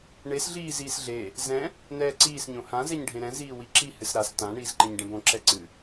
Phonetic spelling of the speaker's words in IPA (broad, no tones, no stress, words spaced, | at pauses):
ɳes ɮiːziːsɮe | zɛ̃ | nɛːǀiːs ɲõhã zɛɲɖʱẽɾɛ̃ ziːwiǁi hɨsɾas tã ɳiːzǃẽɲɖɛ̃bõ ǁɛǀɨ